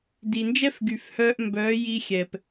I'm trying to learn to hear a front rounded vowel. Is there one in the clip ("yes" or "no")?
yes